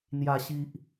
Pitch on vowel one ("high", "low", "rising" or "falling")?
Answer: low